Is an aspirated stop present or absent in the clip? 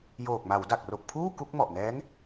present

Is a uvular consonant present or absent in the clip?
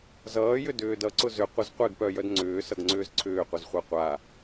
present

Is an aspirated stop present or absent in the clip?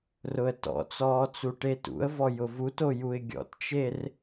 absent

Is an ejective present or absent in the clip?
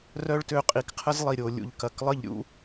present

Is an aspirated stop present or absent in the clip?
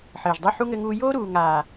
absent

